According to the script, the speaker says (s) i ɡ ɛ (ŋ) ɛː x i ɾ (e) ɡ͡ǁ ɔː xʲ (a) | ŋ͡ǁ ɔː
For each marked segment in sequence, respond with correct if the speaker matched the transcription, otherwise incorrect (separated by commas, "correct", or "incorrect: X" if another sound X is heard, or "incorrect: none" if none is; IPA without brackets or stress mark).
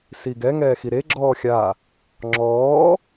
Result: correct, correct, correct, correct